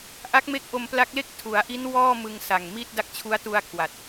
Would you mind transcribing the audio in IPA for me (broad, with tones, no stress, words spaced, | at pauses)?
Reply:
ʔa˦˥k̚me˦˥k̚ ʔo˧mpla˦˥k̚le˥˩k̚ tʰu˩˦a̯ʔi˦˥n wɔː˥˩ mɯ˧ŋsa˨˩ŋmi˥˩t̚ da˦˥k̚t͡ɕʰu˦˥a̯ tu˧a̯ kʰwa˨˩t̚